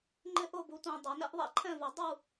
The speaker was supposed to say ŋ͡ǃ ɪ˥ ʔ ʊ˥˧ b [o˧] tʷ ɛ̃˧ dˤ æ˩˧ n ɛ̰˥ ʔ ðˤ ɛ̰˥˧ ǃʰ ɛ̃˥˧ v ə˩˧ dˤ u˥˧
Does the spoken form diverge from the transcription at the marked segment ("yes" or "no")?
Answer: yes